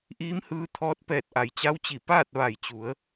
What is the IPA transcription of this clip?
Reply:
ʔiː˧˥mhɯː˧ t̪ʰɔː˧t̚pɛː˧˩t̚ʔa˩j t͡ɕa˧˥wt͡ɕi˧˩ paː˥˨t̚ ʋa˧˩jt͡ɕu˩˧ə̯

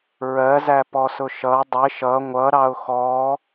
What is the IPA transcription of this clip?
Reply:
ɹɜzæ pɔsʊʃʌ dˤɪʃ ʌ ŋʷʌɾɑʊ̯ xɔ

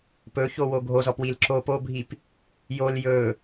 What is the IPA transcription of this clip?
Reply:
pɵçowo ɡʱozɔpwil ǁop obʱip | jol jɵ

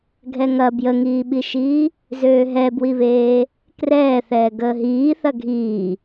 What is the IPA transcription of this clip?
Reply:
ɡʱɛŋɐ bjəŋiːɓiʃiː | zøːɦɛbwiβeː | krɛːθɛː ɡəːɦiː θɐɡʱiː

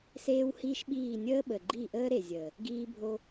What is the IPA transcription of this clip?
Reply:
seː˦whiː˦ʃɓiː˦˨ nʲəː˦ɓə˨ ɡ͡ǃi˦˨ʔəː˦ɾe˨zʲəː˨ | ɡiː˦bʱo˦

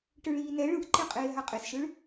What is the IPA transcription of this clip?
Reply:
ʈɯɭiːnɛ ɭɯʔǃeqʼeː ɦaqʼesʃɯɭ

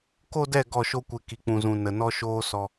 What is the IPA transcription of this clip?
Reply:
ko˦dɛ˦˨ ɡɔ˦˨ʃo˦kʷe˧ ki˨k͡pũ˨zũ˨ nə˨nɔ˧ʃoː˧ sɔ˧

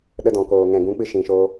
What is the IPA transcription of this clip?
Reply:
ɗə˧dɔ̃˨koː˨ ŋɛ̃˨ɡũ˨˦k͡pɨ˧ ʃĩ˨ʃoː˧

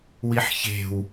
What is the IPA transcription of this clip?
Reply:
wiħçe̤w

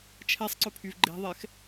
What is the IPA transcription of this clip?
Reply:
t͡ʃʰɛsˤǀɵpʰyv ɡ͡ǃe̤ðˤɛx

